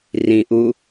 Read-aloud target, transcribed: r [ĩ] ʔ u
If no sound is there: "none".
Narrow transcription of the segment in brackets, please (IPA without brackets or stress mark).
ĩ